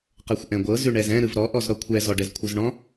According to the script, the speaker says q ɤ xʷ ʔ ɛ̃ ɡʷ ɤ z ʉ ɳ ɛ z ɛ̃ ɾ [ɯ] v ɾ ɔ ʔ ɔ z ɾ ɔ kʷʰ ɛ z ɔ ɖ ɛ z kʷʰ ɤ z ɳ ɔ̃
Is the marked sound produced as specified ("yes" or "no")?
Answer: yes